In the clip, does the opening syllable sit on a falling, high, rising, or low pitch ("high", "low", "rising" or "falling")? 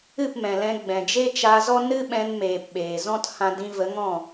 falling